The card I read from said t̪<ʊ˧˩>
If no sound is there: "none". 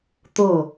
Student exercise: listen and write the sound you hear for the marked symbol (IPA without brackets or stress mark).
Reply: ʊ˧˩